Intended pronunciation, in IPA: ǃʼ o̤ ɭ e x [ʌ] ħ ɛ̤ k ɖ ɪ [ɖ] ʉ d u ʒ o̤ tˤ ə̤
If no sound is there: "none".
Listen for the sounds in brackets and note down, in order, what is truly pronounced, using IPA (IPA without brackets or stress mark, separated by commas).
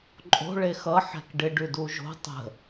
ʌ, ɖ